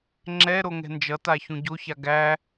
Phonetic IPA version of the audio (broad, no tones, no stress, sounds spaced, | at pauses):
ŋ͡ǁ ɛ ɾ o ŋ ɛ̤ n d͡ʒ ʌ t a ç ũ ɟ o ç a ɡ æ